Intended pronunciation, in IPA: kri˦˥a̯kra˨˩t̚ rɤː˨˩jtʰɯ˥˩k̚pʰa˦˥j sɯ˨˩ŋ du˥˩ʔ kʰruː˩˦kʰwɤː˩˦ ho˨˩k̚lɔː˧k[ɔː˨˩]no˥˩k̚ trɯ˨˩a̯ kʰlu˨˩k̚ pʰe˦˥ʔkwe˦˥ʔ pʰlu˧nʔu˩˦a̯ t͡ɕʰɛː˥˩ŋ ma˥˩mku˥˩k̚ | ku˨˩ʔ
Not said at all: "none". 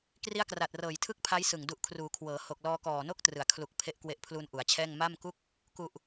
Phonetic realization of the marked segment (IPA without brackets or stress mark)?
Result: ɔː˨˩